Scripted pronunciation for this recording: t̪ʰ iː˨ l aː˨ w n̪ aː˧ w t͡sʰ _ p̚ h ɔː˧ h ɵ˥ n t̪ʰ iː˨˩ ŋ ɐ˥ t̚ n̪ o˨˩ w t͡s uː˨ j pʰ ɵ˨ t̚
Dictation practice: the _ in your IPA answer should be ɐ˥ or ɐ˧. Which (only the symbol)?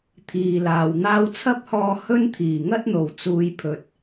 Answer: ɐ˥